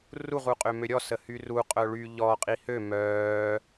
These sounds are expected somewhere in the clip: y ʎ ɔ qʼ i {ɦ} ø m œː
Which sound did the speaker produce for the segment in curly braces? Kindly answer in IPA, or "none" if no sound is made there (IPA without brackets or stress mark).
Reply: h